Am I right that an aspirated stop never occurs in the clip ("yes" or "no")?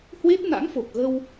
yes